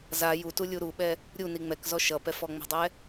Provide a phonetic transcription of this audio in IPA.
z a j u t u lʲ u ɾ u ɓ ɛ | ɾʲ u n i ŋ͡m ɛ k z ɔ ʃ ʌ p ɛ f ɔ ŋ͡m ə̤ dˤ ɛ

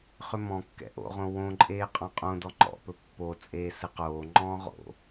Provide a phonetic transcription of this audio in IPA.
χ ʏ m ɔ̃ kː ɛ̰ ʔ o̰ ʁ õ w õ ǃʼ eː qʼ ɔ̃ qʼ õ d ɔ ŋ͡ǃ ɔ̰ p ɵ pː o t͡sʼ eː s ɘ q oː ŋ͡ǃ ɔ̃ː ʁ o̰

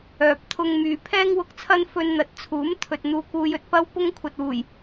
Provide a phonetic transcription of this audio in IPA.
œː˨ p̚ t̪ʰ ʊ˧ ŋ m yː˨ pʰ ɛː˥ ŋ w ʊ˧ k̚ t͡sʰ ɐ˥ n f ɵ˧ n n̪ ɐ˨ t̚ t͡sʰ uː˨˥ m t̪ʰ ɵ˨ t̚ n̪ uː˧ k uː˧ j ɵ˧ t̚ p ɐ˥ w p ʊ˥ ŋ kʷʰ ɐ˨ t̚ w uː˨˩ j

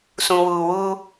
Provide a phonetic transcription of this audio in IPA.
s ũ˨ w uː˨ w uː˦

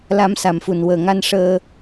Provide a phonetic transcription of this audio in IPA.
l a˧˥ m s a˨˩ m f u˨˩ n w əː˨˩ ŋ a˧ n ʂ əː˧

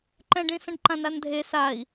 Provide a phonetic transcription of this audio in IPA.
ǃ ɛ̃ ɖ ĩ s ə̃ ɖ ǃ ã n a n dʱ e s a i̯

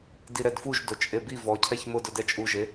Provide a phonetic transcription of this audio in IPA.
d i ɾ ɛ d f u ʒ d o t͡ʃʼ e b i v ɔ cʰ ɛ ç m ʊ d ʊ d ɛ t͡ʃʼ u ʒ e

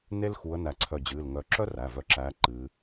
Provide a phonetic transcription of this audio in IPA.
n e˥ l x u˨˦ ə̯ n æ˧˩ ǀʰ œ˧˩ d͡ʑ ɨː˩˧˩ l ŋ œ˨˦ ǁ œ˥ r æ˩˧˩ v œ˧˩ ǁ æː˨˦ ǃ ɨː˨˦

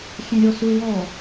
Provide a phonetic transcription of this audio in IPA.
xʲ ɛ̃ ɾʲ ɔ s u w ɔ

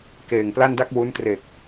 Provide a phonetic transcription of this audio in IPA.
k eː˨˩ ŋ p l a˥˩ n d a˥˩ k̚ w u˦˥ n t r e˨˩ k̚

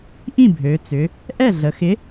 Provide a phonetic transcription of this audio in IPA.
ʔ ĩ˥˩ bʱ ø˩˧ t͡s ʏ˩˧ | ʔ ɛ˥˩ ɮ ə˩˧ x ɪ˨˥

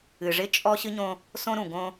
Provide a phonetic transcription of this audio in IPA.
ɨ˨ ʐ ɪ˦ t͡ʃʼ ɔ˦ ɕ ɨ˦ ɲ õ˦ | s õ˦ ɾ ũ˨ ɡ õ˦

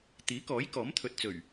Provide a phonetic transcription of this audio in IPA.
t̪ iː˨˥ k ɔː˨˥ j k ɔː˨˥ m t̪ʰ ɵ˨ t̚ t͡s ɵ˨˩ ɥ

